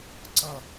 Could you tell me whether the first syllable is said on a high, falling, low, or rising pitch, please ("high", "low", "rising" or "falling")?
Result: falling